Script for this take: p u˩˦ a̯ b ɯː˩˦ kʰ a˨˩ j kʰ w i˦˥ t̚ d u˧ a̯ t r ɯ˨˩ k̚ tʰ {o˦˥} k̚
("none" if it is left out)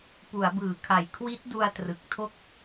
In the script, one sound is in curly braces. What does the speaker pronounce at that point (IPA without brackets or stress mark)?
o˥˩